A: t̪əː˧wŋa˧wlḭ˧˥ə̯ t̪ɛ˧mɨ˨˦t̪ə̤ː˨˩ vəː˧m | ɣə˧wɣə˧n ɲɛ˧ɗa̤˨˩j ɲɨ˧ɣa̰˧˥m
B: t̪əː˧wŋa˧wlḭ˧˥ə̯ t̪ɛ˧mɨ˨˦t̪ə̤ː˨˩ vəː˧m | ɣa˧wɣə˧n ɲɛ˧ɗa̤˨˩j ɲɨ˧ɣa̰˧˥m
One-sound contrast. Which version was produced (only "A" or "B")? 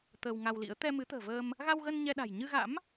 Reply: B